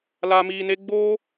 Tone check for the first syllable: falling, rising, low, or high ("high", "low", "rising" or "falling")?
low